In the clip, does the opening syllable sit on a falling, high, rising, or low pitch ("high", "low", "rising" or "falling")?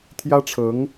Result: high